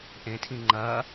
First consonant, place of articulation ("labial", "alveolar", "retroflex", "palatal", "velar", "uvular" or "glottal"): glottal